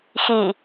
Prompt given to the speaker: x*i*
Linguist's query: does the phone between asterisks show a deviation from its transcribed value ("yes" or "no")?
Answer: no